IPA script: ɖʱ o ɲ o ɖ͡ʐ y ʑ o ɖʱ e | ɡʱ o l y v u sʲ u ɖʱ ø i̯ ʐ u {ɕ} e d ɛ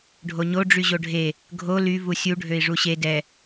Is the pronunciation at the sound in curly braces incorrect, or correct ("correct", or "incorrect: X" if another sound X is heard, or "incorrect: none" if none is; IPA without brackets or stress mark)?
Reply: correct